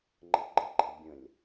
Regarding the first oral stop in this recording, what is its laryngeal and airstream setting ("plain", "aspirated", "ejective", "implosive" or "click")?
click